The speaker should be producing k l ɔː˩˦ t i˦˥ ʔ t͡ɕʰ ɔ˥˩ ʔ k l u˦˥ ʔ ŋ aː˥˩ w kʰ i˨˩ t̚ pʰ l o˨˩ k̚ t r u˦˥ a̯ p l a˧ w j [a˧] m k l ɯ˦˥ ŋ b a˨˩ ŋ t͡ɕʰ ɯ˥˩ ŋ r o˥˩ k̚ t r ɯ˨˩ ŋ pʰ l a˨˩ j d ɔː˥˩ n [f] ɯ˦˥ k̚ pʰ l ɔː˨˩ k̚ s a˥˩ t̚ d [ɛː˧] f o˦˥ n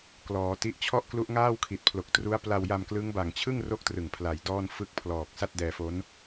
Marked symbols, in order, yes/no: yes, yes, yes

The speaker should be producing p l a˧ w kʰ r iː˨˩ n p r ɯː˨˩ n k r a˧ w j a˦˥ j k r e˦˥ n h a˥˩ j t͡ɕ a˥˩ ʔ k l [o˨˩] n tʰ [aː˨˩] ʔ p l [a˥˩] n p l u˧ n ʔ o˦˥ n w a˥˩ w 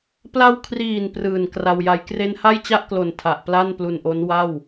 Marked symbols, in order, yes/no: yes, no, yes

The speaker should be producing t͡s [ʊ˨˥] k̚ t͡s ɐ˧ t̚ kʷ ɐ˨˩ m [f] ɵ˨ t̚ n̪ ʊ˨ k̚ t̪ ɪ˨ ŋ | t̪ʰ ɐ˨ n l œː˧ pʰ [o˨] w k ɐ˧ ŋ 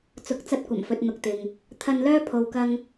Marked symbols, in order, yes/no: yes, yes, yes

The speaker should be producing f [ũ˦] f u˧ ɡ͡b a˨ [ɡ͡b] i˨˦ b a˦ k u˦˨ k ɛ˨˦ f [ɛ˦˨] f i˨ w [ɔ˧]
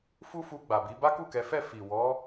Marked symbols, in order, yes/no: no, no, yes, no

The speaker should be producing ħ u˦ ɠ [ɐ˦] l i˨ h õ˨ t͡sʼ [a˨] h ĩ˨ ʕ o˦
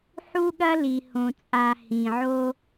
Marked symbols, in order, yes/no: yes, yes

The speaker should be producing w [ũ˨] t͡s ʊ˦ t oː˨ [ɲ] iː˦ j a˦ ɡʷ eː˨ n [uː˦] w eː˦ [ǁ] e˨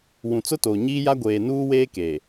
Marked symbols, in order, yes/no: yes, yes, yes, no

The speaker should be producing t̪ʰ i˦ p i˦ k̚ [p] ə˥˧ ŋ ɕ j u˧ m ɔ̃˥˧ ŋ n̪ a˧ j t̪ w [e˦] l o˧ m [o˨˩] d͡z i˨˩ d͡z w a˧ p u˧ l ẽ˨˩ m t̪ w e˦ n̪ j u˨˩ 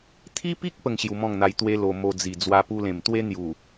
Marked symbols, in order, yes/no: yes, yes, no

